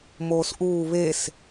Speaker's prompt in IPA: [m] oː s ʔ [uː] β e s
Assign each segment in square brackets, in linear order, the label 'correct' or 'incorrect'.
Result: correct, correct

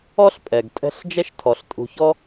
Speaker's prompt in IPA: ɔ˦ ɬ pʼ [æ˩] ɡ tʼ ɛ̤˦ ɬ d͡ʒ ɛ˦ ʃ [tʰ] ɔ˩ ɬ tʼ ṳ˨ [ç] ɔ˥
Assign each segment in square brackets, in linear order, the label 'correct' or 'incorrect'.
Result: incorrect, correct, correct

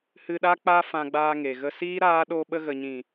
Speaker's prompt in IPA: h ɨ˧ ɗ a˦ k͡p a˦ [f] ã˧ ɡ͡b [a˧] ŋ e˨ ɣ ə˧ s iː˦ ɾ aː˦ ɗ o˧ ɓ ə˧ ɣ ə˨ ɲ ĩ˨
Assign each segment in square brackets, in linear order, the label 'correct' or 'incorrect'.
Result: correct, incorrect

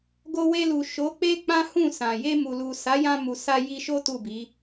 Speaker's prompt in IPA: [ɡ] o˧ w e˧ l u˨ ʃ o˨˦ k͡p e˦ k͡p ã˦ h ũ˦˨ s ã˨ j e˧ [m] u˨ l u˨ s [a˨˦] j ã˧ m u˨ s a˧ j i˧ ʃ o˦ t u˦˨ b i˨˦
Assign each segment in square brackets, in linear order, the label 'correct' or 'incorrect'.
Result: correct, correct, correct

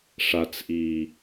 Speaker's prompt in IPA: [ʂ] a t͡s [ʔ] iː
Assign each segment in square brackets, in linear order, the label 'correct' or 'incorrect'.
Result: correct, correct

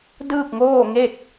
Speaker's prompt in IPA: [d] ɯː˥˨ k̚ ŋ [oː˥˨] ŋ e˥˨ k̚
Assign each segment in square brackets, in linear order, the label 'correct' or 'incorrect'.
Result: correct, correct

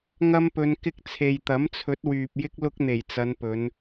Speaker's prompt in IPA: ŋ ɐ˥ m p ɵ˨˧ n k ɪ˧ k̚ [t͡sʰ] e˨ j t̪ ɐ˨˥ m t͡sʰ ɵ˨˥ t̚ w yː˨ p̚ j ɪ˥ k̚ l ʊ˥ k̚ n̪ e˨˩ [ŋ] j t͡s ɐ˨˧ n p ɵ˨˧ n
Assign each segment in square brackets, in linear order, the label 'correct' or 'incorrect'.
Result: correct, incorrect

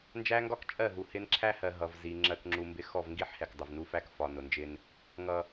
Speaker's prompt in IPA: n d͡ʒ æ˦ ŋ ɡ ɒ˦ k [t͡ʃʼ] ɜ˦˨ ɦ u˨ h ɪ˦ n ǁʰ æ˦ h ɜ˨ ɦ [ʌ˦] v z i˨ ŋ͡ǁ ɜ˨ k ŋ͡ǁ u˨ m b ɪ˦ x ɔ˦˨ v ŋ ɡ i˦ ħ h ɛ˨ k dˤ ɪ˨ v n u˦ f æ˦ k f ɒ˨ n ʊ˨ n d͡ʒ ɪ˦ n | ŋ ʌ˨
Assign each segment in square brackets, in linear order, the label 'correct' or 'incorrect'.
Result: correct, incorrect

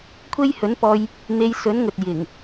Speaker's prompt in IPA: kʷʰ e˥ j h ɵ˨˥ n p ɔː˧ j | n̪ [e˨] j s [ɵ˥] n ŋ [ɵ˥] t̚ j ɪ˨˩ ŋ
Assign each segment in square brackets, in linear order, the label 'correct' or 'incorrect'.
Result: incorrect, incorrect, incorrect

